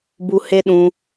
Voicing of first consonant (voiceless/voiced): voiced